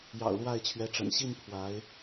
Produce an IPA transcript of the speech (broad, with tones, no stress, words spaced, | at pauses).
jɑ̰˨˩ʊ̯lwa˥˩ɪ̯t͡ɕʰɥɛ˧˥ʈ͡ʂə̰˨˩n ɕi˥˩n pʰwa˧˥ɪ̯